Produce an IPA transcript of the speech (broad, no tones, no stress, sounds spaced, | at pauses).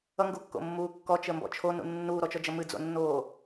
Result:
ʌ ŋ ɡ u kː o̰ mː uː kː ɔ t͡ʃ ə m b ɔ̰ t͡ʃʰ o n ṵ nː uː ɾ ɔ t͡ʃ ɔ d͡ʒ ʌ m ɨ d͡z o̰ nː oː